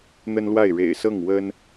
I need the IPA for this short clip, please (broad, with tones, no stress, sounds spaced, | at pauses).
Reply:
n̪ ə˥ n l w a˥˩ ɪ̯ ɻ ḛ˨˩ ɪ̯ s ɤ˥˩ ŋ w ə˥ n